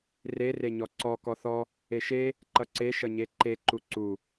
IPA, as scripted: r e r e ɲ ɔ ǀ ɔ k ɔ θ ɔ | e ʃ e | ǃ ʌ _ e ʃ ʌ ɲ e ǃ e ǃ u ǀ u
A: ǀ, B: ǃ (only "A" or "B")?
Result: A